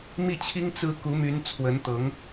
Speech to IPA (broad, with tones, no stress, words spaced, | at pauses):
mi˥˩t͡ɕʰi˥ŋ t͡sɹ̩˥ ku˧˥my˧˥n t͡sʰwə˧˥nt̪ɤ˧˥ŋ